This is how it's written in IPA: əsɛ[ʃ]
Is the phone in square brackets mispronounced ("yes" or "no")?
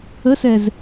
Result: yes